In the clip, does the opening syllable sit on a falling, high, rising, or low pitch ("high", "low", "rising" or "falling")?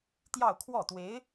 falling